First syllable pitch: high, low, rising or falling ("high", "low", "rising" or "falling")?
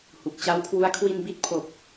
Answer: low